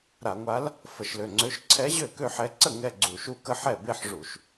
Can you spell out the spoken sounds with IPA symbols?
ɾ a˧˩˧ ŋʷ a˧˥ l | f ə˧˩˧ ʃ l ø˩˧˩ ŋ͡ǀ ø˧˥ ʃ ǀʰ ɛ˧˥ ʑ ø˥˩ k ø˥˧ ħ ɛ˧˥ ǀ ə˥˩ ŋ ɛ˥˧ ɡ͡ǀ u˧˩˧ ʃ u˥˧ k ə˥˧ ħ ɛ˥˩ b e˥˧ ħ ʐ u˧˩˧ ʃ

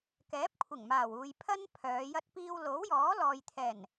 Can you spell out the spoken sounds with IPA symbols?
k ɛː˨˥ p̚ kʷʰ ɪ˨˩ ŋ m aː˨˩ w uː˨ j pʰ ɐ˥ n pʰ œː˨˧ j ɐ˧ t̚ p iː˧ w l o˨˥ w j ɔː˨˥ l ɔː˨ j t̪ʰ ɛː˨˩ n

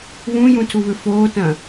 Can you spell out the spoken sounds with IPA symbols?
β ũ j ũ tʰ u β ʏ f oː t ɐ̃

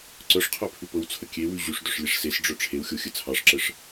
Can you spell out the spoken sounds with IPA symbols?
ǀ œ ʂ qʰ œ pʰ ʉ p ɤ w t͡sʰ ə kʲ e w ʉ ʑ ʉ ʂ d œ ʂ lʲ e ʂ s e s ɖ͡ʐ œ ʈ͡ʂʰ e w xʲ o xʲ ə t͡sʰ ɑ ʂ ǁ ə ʂ

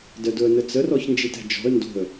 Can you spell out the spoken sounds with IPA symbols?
d ə d ʊ ə̯ n ə t͡s ə r ɔ ç n d͡ʒ i t ɛ̤ d͡ʒ ɔ̤ ə̯ n d o̤ ə̯

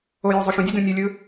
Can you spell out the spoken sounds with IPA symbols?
o j o zˤ u ʃ ũ dʲ u d ũ nʲ u lʲ ɯ

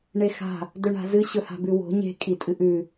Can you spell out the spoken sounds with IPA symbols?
ɳ e x a̤ | d ɵ ɳ a̤ z ɨ ɕ ɵ h a̤ b ʉ w o̤ ɲ e̤ kʼ i tʼ ɨ ʔ ʉ

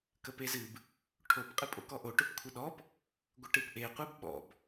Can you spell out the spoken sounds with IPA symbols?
k ə p e z ɨ b | ʈʰ o p qʼ ɨ pʼ o̰ k ɔ ʔ o ʈ ɵ p kʷʰ ɨ ɗ ɔ p | ɡʷ ə ʈ ɨ p ʔ e qʷ e b ɓ ɔ̰ b

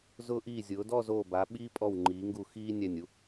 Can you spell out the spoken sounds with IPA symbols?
z ʊː˧ ʔ iː˧˩ zʲ ʊː˩˧ d ɔ˥˧ z oː˧˩ b a˩˧ ɓ iː˥ pʼ ɔ˧˩ w ŋ͡ǃ iː˩˧ ŋ ɡ u˧˩ x iː˥ nʲ æ˧˩ nʲ u˧

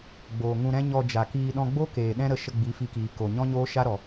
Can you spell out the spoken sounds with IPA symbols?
ɡ͡b oː˨ ŋ ũ˧ ɾ ɛ̃˦ ɲ ɔ˧ d͡ʒ a˨ k iː˧ ɗ ɔ̃˧ ɡ͡b o˦ k eː˨ ɗ ɛ̃˦ ɾ ə˧ ʃ ə˧ ɡ͡b i˨˦ f i˧ k iː˨ k o˨ ɲ ɔ̃˦ ɲ oː˦ ʃ a˦ ɾ ɔ˨

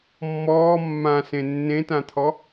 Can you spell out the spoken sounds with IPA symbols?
mː ɔː mː ã s ẽ nː ẽ t ã t̪ʰ ɔ

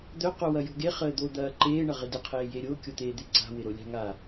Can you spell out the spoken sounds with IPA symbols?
d̪ œ q o w ɐ j o̤ ɡ e χ əː d̪ o d̪ ɐː ǃ eː ɳ ɐ ʁ ɪ d ɪ qʰ eː j e ɾʲ o kʲ o t̪ eː d̪ e ǀ a̤ w ɪ ɾ o lʲ a̤ ŋ a

